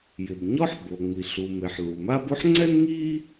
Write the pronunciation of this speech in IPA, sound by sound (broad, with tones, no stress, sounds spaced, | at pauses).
j ɪ˩ b ɲ ɔ˥ ħ b o˩ ŋ͡m i˩ ɬ u˩ m e˩ ħ l u˩ m a˥ b o˥ ħ ŋ͡ǀ ɛ˥ n ŋ i˥